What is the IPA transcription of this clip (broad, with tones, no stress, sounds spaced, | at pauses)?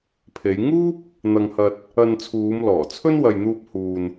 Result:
pʰ e˨˧ j ŋ uː˥ p̚ | n̪ ɐ˧ ŋ h ɐ˧ t̚ | ɐ˧ n t͡sʰ uː˨˧ m l ɔː˨˩ t͡sʰ ɵ˥ n w ɐ˨ j n̪ uː˧ p̚ h uː˨ n